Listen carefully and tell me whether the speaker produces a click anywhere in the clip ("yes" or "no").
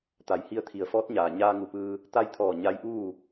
no